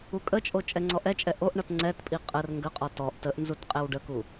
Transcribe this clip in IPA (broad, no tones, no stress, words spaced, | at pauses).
ukʼət͡ʃʼo t͡ʃʼɛŋ͡ǀɔʔɛt͡ʃʼɛ ʔoʔɳʌt ŋ͡ǀɛtpʼi qʼər ŋɡəqʼɔ tɔʔ təʔ nzutqʼɛwɖəku